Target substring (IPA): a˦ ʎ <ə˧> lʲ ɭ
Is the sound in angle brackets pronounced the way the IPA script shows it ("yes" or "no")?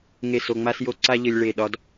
yes